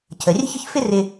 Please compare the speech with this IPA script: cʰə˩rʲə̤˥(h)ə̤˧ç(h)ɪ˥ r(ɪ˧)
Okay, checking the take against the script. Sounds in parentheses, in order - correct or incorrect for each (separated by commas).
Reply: incorrect, incorrect, correct